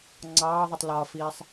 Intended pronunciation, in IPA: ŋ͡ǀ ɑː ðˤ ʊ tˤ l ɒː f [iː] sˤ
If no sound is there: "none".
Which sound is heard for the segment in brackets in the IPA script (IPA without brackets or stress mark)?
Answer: iː